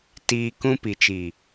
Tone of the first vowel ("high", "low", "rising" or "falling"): low